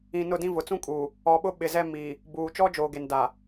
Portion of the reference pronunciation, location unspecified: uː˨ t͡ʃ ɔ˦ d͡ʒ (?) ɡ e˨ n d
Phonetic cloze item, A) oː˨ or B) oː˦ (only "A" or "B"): A